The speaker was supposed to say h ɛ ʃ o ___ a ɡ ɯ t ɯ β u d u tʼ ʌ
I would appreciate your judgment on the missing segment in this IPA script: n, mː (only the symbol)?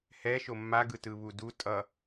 mː